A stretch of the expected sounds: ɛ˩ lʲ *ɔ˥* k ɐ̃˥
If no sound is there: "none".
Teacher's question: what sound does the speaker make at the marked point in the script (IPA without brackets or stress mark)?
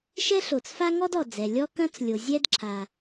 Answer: ɔ˥